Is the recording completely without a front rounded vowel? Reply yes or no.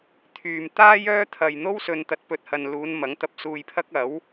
no